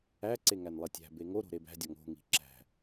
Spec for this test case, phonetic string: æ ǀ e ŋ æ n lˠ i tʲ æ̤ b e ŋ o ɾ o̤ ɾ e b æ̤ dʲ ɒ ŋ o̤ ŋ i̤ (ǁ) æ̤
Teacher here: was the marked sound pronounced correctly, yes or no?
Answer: yes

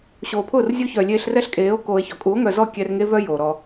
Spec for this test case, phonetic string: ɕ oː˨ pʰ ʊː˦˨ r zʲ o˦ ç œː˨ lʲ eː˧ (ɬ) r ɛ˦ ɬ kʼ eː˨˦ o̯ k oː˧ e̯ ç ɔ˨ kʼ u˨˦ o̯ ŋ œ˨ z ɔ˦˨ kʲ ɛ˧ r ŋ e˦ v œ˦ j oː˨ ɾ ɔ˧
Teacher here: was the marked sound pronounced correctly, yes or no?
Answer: yes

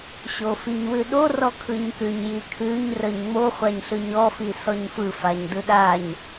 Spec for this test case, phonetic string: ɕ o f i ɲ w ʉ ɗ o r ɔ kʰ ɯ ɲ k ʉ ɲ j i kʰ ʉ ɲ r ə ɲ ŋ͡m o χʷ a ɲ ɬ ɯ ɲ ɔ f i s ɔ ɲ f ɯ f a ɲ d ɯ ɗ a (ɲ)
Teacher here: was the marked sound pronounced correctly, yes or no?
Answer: yes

